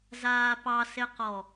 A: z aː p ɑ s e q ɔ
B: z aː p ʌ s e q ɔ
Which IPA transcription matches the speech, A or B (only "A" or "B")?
A